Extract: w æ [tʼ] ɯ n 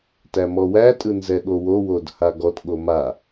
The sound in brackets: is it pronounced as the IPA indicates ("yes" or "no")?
yes